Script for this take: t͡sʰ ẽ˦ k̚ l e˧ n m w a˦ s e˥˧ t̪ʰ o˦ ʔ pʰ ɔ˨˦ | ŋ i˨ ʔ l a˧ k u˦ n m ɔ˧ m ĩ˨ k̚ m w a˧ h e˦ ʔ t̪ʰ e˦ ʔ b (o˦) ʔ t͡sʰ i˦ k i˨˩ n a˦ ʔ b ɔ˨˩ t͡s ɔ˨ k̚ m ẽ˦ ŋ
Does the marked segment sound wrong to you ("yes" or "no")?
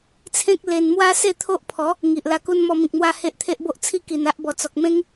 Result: no